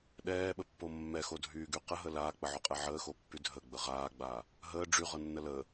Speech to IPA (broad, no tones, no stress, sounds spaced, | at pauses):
ɗ ɛː ɓ ə pː o mː ɛ x o dʱ yː ɡ y q ə ɦ ə l aː k͡p ə ʕ o qʼ ɛ ʕ əː x o pː y dʱ ə ɡ͡b ə ʁ aː ɡ͡b aː | ɦ əː ɖ͡ʐ y ʁ ɤ nː ə l əː